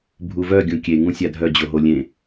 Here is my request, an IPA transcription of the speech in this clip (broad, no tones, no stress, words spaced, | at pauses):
bʱuvœ ɡʲũkʲe ŋũsʲadʱœ d͡ʑoɦolʲẽ